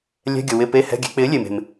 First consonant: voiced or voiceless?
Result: voiced